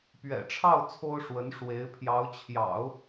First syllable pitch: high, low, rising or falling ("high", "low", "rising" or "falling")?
low